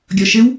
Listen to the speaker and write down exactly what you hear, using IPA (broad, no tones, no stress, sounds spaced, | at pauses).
ɡʲ ɔ ʃ ɘ w